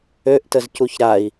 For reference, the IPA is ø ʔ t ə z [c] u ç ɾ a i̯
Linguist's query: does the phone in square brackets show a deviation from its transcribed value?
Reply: no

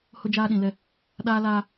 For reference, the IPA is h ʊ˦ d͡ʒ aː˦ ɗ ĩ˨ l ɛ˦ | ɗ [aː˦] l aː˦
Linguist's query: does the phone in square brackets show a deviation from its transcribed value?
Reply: no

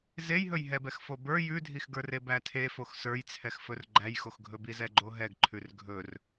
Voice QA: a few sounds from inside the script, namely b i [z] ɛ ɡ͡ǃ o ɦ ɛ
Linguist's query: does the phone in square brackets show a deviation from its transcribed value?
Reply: no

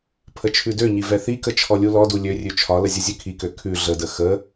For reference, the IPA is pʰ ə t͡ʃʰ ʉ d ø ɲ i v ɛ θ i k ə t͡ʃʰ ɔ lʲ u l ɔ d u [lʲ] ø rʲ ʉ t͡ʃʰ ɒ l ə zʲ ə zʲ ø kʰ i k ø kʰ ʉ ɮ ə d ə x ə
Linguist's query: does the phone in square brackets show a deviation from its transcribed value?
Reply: no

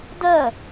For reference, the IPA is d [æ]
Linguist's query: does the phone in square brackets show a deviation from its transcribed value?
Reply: yes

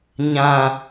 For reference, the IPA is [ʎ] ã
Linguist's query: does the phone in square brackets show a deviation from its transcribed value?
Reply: yes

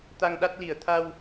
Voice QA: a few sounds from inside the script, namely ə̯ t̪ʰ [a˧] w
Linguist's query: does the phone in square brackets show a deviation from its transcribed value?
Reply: no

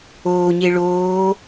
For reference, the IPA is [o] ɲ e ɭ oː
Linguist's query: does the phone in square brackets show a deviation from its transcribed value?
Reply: yes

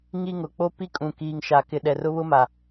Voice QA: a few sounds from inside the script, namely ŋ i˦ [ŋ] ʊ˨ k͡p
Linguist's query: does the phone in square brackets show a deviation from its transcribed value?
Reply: no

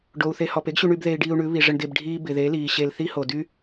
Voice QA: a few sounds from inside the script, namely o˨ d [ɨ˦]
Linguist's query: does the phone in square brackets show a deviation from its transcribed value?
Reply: yes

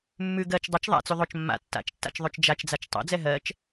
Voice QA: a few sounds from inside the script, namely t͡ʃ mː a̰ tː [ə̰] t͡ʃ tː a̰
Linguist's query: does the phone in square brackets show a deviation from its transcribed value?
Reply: yes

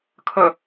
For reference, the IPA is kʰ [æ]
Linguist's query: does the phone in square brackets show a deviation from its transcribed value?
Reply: yes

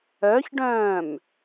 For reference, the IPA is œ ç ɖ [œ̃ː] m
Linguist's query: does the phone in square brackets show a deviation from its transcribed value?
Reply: no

